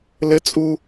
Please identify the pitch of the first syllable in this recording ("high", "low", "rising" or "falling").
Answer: high